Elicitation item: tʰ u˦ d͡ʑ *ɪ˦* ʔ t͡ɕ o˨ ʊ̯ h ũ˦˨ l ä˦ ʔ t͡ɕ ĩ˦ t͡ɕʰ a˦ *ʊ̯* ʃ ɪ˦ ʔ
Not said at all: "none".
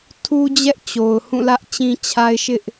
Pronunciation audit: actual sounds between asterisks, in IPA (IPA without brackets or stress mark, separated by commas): ɛ˦, ɪ̯